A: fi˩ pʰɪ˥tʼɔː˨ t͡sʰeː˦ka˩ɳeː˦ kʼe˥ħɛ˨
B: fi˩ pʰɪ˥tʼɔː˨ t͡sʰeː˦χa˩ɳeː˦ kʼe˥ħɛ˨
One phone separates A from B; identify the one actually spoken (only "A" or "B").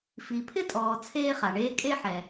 B